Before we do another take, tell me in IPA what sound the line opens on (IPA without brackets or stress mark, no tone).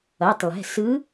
ʌ